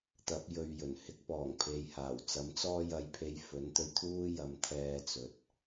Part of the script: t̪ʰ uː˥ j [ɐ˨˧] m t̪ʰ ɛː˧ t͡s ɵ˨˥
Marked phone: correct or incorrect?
correct